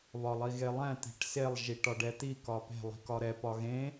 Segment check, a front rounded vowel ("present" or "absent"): absent